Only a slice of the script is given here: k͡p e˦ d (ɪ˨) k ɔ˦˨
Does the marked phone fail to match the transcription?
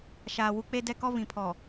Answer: yes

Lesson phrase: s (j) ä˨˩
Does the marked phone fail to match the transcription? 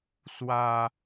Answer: yes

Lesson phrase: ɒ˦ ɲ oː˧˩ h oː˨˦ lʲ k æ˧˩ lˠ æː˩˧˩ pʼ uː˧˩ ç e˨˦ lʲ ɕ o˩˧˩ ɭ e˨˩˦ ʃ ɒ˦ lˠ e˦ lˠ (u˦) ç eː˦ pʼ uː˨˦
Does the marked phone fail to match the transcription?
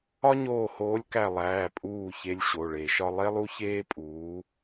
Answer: no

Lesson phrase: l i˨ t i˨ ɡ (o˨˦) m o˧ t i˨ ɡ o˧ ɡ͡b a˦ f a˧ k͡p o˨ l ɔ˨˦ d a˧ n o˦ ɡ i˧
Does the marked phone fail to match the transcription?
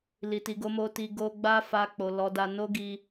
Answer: no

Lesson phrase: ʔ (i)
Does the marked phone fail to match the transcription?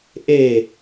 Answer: yes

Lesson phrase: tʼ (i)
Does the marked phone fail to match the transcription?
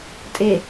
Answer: yes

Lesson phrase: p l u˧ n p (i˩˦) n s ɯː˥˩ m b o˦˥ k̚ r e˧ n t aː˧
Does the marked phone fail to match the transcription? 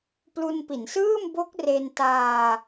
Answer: no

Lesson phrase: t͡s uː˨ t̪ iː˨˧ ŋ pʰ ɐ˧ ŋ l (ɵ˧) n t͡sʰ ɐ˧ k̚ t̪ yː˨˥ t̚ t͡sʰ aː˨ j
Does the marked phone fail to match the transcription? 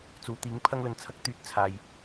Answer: yes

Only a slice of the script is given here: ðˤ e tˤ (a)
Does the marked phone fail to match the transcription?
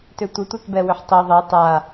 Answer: no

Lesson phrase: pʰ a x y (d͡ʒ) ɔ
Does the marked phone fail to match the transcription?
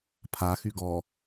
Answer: yes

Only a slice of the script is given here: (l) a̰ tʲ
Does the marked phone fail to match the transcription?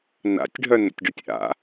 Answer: yes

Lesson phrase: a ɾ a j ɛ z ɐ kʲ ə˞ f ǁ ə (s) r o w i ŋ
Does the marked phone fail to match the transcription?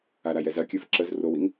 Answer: yes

